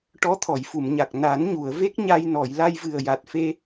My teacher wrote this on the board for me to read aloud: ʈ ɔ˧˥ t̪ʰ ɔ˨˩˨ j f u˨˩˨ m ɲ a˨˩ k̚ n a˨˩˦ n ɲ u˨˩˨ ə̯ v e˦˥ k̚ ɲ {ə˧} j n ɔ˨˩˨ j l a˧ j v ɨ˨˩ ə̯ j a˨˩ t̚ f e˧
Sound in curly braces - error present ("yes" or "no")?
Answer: yes